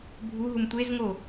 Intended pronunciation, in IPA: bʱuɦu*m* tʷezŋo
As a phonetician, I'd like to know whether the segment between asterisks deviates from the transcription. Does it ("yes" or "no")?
no